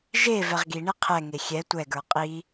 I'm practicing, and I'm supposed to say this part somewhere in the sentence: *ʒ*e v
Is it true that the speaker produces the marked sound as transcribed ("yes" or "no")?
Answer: yes